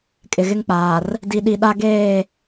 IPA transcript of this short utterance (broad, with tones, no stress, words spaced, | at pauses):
kʼɪ˨ɣɪ˦ŋk͡paː˨r | di˨ɗi˨ ɗa˦ ɡeː˦˨